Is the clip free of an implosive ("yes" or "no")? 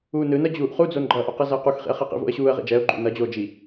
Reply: yes